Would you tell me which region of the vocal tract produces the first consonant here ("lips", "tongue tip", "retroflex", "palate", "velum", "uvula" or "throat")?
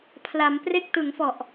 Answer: lips